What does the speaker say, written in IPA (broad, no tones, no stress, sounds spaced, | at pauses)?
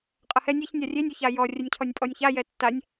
qʼ ɐ h ɛ nʲ e ç nʲ a rʲ e nʲ u ç a j ɔ rʲ ɛ nʲ cʰ ɔ nʲ pʼ ɔ nʲ ç a j ɛ tː a nʲ